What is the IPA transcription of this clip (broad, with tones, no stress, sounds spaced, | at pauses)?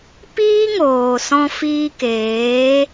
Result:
p iː˦ ŋ oː˨ s ɔ̃˧ f iː˧ k eː˨˦